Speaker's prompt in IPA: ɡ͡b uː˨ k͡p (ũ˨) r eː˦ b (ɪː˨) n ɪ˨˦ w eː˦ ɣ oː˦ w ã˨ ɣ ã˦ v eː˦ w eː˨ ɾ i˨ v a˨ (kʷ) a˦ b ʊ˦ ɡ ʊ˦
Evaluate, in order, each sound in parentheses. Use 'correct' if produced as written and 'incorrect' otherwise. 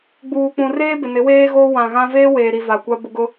correct, incorrect: ɪ˨, correct

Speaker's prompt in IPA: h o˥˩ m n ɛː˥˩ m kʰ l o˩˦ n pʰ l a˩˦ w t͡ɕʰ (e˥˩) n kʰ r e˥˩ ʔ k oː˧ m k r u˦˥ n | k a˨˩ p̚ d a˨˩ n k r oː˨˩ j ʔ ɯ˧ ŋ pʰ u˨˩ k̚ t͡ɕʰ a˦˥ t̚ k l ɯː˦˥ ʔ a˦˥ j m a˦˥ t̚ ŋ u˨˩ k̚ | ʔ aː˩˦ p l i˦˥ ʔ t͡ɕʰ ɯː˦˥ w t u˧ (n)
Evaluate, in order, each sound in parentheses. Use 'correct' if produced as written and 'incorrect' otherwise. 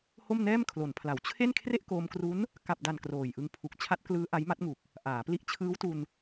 correct, correct

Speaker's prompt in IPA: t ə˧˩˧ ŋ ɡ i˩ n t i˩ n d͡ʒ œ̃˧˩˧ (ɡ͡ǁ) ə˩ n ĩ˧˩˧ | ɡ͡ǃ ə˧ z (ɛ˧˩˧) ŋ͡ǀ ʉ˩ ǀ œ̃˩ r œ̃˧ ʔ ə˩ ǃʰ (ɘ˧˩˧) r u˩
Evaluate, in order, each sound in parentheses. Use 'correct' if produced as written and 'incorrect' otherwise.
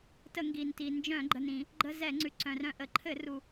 incorrect: ɡ͡ǃ, correct, correct

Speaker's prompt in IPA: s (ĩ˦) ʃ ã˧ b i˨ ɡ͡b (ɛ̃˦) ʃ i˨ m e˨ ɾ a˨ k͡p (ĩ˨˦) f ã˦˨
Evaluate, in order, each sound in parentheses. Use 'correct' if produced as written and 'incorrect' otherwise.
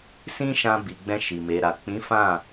correct, incorrect: ɛ̃˧, correct

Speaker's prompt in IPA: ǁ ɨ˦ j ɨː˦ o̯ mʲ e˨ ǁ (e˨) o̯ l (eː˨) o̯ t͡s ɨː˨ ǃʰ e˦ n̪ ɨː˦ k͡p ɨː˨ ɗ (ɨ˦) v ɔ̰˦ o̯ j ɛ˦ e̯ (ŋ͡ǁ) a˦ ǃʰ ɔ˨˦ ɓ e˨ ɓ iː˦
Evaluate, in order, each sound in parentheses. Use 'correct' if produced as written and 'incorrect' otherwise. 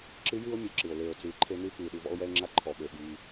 incorrect: ɨ˨, correct, correct, correct

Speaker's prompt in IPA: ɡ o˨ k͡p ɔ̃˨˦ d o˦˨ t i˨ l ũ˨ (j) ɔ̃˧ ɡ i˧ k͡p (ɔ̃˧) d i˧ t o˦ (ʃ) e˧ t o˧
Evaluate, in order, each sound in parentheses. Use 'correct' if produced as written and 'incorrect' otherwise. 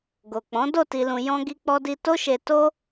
correct, incorrect: ɔ˧, correct

